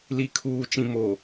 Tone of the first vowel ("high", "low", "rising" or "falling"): low